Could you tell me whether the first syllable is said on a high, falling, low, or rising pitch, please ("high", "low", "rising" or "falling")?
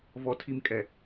low